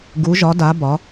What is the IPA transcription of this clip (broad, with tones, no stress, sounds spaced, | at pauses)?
ɡ u˩˧ ʒ ɒ˩˧ d a˩˧ b ɒ˩˧